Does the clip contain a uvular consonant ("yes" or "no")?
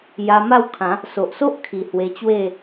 no